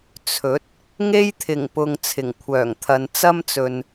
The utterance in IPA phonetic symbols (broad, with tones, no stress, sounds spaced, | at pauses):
t͡sʰ ɵ˨˥ t̚ | ŋ e˥ j t̪ʰ ɪ˨˩ ŋ p ʊ˨ ŋ t͡sʰ ɪ˨˩ ŋ kʷʰ œː˨˩ ŋ t̪ʰ ɐ˨ n t͡s ɐ˥ m t͡s ɵ˨ n